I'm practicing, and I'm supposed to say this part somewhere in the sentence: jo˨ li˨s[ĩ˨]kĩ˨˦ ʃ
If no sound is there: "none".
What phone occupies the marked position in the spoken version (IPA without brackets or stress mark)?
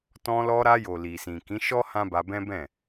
ĩ˨